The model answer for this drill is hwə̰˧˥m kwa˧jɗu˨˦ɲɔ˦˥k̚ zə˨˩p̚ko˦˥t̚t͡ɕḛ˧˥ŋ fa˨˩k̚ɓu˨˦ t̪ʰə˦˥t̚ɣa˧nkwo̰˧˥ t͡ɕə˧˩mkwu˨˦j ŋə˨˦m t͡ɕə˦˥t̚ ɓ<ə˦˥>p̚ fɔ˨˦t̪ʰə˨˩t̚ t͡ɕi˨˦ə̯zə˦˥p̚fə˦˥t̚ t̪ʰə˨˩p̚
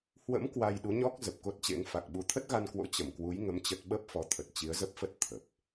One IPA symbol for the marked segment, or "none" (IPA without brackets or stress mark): ə˦˥